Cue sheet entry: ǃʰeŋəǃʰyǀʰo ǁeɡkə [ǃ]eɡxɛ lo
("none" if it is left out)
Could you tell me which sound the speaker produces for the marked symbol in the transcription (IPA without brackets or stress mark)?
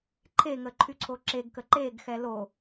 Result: ǃ